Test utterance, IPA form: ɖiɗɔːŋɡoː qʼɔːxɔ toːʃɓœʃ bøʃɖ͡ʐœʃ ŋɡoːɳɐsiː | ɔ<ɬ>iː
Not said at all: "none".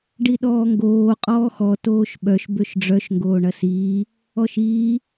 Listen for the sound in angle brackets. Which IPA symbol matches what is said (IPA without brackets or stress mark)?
ʃ